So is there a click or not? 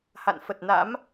no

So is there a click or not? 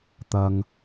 no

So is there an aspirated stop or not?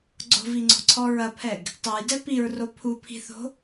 yes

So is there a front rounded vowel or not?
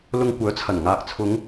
yes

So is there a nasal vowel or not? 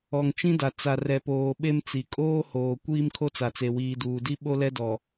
yes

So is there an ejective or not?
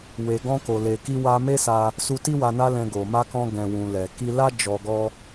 no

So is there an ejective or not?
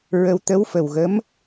no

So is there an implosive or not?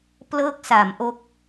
no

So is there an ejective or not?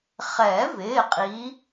yes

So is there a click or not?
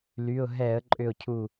yes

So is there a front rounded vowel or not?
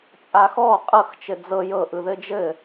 no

